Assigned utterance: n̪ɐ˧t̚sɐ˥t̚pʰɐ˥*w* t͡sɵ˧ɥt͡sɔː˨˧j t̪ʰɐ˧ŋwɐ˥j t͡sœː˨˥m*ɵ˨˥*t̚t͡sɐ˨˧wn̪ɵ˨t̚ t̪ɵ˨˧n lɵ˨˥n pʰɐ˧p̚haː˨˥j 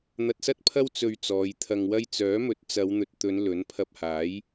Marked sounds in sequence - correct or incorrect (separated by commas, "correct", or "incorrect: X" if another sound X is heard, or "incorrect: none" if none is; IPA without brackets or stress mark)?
correct, correct